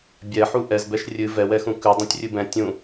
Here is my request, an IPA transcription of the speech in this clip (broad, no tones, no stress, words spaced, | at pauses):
bʲɛħu ʔɛzbɛʃ rʲɨ vɛwɛxũ kʉ dˤĩtʲrʲɨbɛ̃ tʲũ